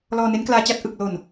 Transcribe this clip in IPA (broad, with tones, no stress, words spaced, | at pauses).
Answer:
lɔː˧ne˦˥nklaː˧t͡ɕa˥˩t̚ ʔɯ˨˩k̚lo˨˩n